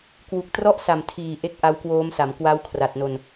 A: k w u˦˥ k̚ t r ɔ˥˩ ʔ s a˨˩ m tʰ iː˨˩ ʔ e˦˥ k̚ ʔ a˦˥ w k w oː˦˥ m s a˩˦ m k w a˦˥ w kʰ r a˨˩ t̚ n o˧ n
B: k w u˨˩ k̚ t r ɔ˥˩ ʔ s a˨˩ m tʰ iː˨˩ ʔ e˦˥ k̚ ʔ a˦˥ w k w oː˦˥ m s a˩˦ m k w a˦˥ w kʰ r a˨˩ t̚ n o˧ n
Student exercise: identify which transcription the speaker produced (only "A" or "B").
B